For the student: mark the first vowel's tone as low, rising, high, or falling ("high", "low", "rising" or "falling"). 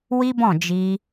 high